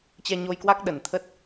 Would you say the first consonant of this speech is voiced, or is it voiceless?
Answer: voiceless